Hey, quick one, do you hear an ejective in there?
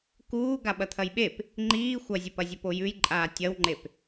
yes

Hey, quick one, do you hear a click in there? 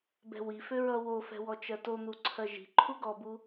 yes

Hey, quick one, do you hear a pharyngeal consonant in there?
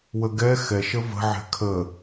yes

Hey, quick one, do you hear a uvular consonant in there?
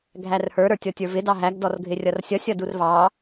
no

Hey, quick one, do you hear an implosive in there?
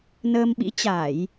yes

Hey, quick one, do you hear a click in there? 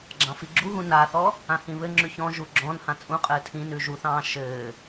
yes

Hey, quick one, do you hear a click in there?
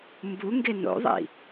no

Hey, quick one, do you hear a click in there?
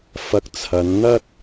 no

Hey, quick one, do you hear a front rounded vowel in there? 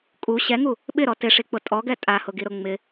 no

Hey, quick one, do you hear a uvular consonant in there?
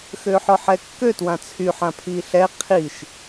yes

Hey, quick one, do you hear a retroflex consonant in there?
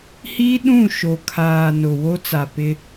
no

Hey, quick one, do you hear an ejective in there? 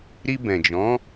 no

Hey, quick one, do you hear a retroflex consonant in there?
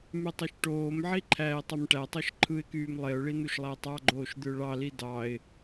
yes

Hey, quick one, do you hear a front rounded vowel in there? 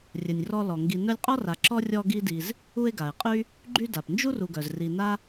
yes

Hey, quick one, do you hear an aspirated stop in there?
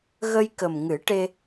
no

